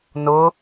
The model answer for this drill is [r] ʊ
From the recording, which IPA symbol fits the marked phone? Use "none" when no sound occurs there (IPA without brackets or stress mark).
n